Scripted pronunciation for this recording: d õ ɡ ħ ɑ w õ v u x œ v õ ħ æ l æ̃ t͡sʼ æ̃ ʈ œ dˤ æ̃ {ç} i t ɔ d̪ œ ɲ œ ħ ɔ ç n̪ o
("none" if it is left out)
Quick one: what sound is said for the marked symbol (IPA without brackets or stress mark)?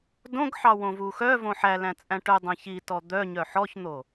ç